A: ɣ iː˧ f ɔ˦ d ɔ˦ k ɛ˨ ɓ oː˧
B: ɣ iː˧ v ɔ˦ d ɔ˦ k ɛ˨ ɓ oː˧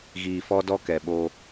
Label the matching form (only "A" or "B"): A